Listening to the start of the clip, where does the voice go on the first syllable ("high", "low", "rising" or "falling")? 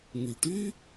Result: low